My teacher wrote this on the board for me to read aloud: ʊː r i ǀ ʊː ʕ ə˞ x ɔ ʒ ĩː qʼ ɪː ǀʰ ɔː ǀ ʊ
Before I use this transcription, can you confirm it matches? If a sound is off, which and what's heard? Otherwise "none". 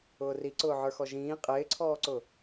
none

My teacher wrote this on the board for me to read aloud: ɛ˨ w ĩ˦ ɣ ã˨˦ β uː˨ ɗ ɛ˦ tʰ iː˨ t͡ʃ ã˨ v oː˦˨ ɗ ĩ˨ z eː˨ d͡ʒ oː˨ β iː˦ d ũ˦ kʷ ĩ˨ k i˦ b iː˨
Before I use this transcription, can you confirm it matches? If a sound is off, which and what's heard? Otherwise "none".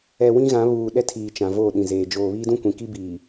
none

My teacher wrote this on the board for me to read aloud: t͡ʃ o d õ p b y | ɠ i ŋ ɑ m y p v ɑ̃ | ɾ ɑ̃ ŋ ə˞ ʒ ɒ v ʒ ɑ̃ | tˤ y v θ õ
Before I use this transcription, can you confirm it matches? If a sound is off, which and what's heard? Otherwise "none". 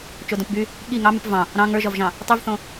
none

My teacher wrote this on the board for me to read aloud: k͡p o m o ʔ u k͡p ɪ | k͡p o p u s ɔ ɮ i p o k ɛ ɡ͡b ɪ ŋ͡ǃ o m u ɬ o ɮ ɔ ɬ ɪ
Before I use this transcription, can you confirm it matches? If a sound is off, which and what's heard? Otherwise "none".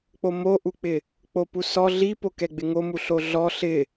ŋ͡ǃ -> ŋ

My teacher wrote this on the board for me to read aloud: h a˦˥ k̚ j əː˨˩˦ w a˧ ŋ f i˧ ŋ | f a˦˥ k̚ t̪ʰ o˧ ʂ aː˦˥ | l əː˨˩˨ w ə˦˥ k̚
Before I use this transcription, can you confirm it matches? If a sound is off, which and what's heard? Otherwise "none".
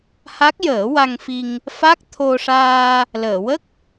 aː˦˥ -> aː˧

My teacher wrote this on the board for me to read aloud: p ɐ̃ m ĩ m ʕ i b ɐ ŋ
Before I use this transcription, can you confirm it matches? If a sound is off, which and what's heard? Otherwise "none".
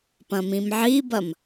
ŋ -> m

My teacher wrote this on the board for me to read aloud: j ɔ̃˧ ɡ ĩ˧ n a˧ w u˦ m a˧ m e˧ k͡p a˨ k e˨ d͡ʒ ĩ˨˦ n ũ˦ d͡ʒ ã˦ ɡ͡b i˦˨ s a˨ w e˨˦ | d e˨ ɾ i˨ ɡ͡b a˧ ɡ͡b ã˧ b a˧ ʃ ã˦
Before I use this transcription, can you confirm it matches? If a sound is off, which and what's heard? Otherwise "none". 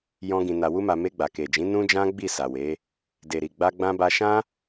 k͡p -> ɡ͡b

